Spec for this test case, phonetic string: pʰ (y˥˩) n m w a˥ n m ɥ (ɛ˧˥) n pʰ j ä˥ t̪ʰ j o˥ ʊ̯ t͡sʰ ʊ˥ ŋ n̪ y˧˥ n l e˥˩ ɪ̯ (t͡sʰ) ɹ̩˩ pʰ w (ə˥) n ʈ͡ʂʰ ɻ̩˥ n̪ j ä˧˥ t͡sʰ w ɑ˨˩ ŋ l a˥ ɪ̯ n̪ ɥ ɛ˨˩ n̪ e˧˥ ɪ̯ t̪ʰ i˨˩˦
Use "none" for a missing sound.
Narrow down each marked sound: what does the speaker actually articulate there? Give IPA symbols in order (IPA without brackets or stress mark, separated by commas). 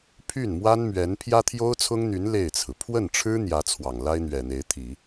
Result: y˥˩, ɛ˧˥, t͡sʰ, ə˥˩